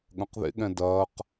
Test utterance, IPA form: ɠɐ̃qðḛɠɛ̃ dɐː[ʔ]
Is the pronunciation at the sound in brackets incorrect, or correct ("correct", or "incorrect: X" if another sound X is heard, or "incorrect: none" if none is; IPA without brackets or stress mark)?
incorrect: q